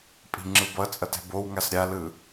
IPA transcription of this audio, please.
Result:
pʼ i̤ ŋ͡ǁ ɯ b ʌ t͡sʼ ʌ t ɛ̤ b o w ŋ a s ɾʲ a l ɯ

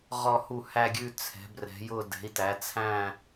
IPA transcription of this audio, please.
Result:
ʁ ɔ˥˧ h u˥˧ h æ˥˧ ɡʲ ʉ˥˧ t͡sʰ ɛ̤˨˥ b r ɛ̤˨˥ j ʊ˥˧ d ɛ̤˨˥ i̯ t æ˨˥ t͡sʰ æ̃˥˧

